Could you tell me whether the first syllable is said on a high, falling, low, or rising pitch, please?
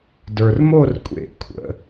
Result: low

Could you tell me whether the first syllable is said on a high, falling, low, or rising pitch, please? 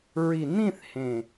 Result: low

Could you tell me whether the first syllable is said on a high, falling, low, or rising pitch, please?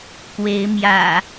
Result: rising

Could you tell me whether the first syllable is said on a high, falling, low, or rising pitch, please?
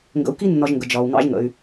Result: low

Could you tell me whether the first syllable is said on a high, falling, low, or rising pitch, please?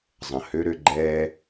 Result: low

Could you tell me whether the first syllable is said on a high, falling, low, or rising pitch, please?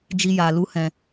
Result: high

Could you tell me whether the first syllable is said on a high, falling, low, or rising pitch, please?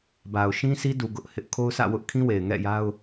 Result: low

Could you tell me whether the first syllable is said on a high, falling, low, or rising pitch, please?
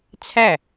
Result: falling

